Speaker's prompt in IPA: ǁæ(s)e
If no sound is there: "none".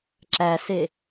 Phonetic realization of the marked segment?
s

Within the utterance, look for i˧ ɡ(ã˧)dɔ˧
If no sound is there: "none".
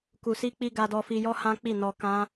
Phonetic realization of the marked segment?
a˧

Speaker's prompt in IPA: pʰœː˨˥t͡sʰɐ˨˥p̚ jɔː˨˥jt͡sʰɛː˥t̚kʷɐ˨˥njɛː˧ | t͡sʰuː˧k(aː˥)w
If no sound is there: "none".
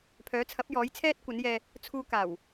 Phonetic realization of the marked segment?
aː˨˩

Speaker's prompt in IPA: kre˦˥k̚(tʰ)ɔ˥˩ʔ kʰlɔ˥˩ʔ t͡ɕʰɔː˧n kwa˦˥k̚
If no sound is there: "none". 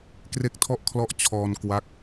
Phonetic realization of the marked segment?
tʰ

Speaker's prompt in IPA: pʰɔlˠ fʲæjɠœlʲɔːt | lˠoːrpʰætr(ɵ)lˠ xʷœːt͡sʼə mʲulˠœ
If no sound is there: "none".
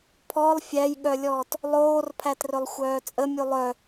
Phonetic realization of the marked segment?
ɵ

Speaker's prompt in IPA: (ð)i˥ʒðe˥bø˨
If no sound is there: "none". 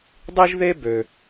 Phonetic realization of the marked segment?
dˤ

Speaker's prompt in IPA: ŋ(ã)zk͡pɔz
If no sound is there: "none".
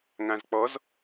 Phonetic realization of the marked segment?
ã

